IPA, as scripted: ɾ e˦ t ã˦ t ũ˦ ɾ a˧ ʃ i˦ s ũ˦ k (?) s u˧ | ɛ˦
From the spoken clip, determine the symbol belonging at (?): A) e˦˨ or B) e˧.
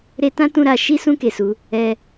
B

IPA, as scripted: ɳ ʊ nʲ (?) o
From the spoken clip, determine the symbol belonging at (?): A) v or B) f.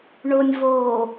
A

